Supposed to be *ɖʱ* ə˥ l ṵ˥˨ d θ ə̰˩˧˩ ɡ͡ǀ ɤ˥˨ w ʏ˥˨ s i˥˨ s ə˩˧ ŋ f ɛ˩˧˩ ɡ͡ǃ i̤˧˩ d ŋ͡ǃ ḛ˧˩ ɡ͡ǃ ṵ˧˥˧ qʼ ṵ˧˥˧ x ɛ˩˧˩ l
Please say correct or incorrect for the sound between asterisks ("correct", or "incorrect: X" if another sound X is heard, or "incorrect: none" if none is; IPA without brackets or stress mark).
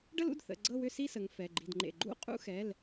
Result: incorrect: ɖ